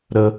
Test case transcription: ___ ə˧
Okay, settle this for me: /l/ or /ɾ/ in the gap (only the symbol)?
ɾ